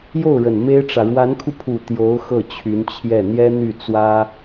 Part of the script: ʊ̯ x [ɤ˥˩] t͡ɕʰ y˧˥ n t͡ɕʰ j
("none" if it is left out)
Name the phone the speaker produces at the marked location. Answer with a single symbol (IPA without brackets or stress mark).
ɤ˥˩